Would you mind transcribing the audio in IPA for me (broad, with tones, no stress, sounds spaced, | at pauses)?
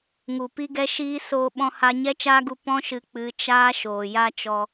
ŋ u˨ p i˦ ɡ ɛ˦ ʃ iː˦ s oː˧ ɓ ɔ̃˧ h a˧ ɲ ɛ˦ t͡ʃ aː˦ ɡ u˧ p ɔ̃˦ ʃ ɨ˨˦ k͡p ɨ˨˦ t͡ʃ aː˦ ʃ oː˨ j a˦ t͡ʃ ɔ˧